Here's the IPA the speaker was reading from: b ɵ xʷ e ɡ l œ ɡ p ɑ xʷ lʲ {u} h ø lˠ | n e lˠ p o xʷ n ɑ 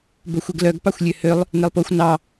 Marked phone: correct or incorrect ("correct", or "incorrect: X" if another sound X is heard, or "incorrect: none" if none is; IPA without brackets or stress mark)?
incorrect: ø